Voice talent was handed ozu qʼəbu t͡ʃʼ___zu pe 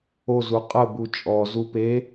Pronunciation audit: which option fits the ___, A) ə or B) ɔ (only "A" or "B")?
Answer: B